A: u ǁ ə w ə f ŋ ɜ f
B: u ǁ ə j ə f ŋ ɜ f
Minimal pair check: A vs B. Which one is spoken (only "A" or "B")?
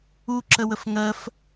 A